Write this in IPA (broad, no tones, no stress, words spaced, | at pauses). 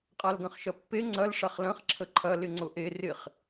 qʼalɡɐ̃χʃɐpːe ŋ͡ǀɐl ʂaχlɐ̃χ ǁʰəǃʰɐ lɪŋ͡ǀʊʔe rɪχ